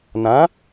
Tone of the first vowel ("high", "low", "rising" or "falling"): rising